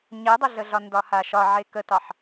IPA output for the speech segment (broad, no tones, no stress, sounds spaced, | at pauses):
ɲ ɛ dˤ ə ɮ ə ɮ ɒ n d ɒ h a ʃ ɒ ʕ e k ə t ɑ ħ